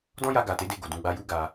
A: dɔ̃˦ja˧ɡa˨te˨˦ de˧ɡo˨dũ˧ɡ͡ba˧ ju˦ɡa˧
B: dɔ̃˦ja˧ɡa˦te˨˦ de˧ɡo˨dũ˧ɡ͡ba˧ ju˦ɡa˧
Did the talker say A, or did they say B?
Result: A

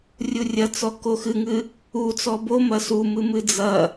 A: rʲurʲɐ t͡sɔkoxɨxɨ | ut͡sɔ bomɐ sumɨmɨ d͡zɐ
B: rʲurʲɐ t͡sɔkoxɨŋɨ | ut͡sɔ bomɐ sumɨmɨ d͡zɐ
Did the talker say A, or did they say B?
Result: B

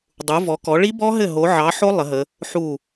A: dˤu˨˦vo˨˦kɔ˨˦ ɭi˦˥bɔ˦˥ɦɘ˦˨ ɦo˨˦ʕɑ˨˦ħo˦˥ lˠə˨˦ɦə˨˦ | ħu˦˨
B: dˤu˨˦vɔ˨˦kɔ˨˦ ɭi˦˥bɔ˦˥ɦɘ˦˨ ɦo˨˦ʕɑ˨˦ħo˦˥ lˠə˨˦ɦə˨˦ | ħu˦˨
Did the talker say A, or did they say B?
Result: B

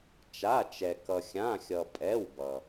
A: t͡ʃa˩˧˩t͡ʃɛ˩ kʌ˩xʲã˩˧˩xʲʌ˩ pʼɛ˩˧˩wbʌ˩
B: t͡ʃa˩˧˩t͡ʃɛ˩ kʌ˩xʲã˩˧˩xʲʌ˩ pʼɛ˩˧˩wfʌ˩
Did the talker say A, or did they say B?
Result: A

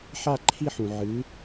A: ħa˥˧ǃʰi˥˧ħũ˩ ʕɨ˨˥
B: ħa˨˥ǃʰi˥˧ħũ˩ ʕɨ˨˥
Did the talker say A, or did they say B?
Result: A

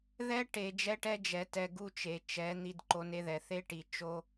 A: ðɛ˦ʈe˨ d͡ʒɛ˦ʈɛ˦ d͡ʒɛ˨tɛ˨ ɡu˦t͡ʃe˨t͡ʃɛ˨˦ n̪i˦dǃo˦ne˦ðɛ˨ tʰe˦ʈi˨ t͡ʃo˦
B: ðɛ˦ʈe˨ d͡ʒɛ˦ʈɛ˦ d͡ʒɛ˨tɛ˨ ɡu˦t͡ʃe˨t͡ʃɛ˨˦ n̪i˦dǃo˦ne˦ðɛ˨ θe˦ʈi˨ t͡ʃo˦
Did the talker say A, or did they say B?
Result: B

